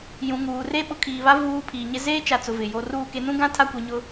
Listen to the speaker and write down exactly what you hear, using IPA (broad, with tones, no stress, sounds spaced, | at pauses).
j ũ˨ ŋ uː˨ r e˦ ɓ ʊ˨˦ kʰ iː˨ β a˦ v uː˨ pʰ iː˨ ɲ ɪ˦ z eː˦ t͡ʃ a˨ t͡s ʊ˨ v ɪ˨ j o˦ r uː˦˨ k e˦ n ũ˦ ɡ ã˦ tʰ a˦ kʷ i˨ ɲ ʊ˦